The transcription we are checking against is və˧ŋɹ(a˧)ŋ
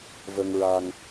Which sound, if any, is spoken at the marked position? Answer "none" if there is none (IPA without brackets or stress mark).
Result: a˧